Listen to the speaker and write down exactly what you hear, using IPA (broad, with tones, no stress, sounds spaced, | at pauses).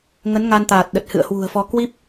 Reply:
ŋ ə˨˦ n ŋ a˧ n t̪ aː˨˩ t̚ ɗ ə˨˩ t̚ h ɨ̰˧˨ ə̯ h w ṳ˨˩ ə̯ f ɔ˧ k w i˦˥ p̚